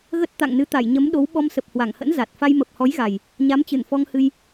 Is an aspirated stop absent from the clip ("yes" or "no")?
yes